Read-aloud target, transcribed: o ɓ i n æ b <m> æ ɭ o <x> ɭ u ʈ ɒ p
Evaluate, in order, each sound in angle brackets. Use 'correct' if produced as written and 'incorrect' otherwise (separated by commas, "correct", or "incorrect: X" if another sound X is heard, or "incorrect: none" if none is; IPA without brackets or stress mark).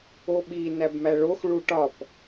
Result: correct, correct